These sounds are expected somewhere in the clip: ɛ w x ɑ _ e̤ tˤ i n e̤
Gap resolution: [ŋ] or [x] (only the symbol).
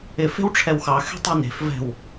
x